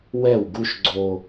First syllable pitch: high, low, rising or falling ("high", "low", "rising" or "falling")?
falling